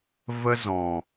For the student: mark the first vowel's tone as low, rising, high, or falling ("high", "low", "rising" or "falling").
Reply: high